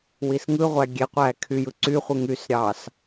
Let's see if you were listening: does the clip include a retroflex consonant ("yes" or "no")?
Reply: no